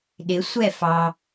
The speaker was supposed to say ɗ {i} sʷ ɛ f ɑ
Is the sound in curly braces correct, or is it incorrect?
incorrect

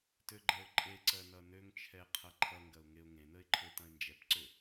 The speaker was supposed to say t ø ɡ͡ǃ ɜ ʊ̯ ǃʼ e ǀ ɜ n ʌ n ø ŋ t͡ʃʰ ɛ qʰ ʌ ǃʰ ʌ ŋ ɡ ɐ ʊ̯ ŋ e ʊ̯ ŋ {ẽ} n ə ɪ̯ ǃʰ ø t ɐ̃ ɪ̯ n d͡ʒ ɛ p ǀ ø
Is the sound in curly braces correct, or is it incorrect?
correct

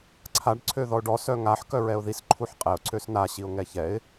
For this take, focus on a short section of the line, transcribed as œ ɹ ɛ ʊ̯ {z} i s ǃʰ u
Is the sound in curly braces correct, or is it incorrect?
incorrect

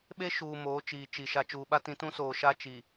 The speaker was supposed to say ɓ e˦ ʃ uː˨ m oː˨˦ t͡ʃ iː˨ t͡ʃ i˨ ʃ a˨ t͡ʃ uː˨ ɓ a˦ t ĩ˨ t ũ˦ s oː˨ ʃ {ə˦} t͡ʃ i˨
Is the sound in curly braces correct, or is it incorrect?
incorrect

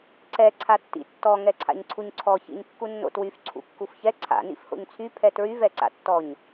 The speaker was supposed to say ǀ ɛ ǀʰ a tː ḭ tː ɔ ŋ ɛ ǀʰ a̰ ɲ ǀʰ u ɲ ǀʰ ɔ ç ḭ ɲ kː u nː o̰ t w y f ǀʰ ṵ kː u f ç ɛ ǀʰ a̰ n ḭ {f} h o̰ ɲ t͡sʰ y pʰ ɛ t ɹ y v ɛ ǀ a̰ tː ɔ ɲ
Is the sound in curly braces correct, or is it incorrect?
correct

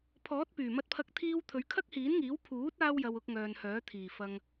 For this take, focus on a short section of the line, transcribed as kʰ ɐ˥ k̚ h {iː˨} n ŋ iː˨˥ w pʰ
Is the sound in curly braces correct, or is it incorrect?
incorrect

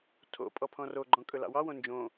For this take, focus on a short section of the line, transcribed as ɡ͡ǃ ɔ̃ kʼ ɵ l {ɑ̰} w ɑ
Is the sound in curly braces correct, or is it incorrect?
correct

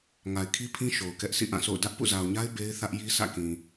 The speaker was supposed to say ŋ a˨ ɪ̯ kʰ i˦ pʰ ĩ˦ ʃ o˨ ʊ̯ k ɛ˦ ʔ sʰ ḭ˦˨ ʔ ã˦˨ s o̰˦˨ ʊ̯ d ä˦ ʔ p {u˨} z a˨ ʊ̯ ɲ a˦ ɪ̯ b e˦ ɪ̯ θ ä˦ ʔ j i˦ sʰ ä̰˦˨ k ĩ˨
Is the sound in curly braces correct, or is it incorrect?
incorrect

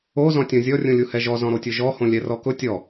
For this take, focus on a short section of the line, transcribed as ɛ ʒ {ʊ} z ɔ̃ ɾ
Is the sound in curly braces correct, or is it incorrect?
incorrect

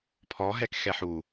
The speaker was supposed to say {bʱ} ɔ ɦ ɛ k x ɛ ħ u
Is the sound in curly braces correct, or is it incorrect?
incorrect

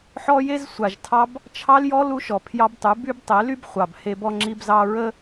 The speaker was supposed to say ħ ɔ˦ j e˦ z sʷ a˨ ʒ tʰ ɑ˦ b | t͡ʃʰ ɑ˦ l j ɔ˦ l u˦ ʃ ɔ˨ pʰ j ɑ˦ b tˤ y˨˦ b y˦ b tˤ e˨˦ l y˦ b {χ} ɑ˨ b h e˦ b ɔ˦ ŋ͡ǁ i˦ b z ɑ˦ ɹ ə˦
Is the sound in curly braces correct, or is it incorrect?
incorrect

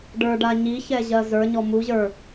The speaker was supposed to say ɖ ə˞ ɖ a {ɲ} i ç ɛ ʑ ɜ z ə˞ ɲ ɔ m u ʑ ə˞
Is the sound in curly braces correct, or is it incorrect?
correct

